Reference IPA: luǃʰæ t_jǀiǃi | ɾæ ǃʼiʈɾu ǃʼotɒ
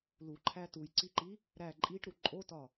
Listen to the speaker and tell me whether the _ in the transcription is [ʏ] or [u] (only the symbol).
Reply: u